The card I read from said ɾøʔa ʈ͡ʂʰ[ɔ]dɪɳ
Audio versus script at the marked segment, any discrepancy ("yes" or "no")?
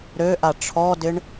no